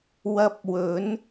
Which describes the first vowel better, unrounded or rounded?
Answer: unrounded